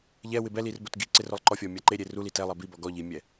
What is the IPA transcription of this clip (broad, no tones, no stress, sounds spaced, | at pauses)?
ʎ ɛ w ɪ b ɛ l i r b o t ɡ i ǀ ɪ r ʊ lˠ ǃ ɔ fʲ ɔ mʲ a ǃ e ɾʲ e r u l i t ɛ lˠ ɛ b i b ɔ ɡ ɔ ʎ i mʲ ɛ